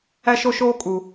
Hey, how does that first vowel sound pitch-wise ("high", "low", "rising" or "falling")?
high